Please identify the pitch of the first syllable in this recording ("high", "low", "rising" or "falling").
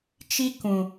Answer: high